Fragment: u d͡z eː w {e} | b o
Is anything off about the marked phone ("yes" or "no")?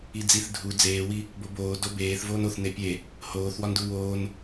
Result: yes